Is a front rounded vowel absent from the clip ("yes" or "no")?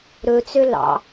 no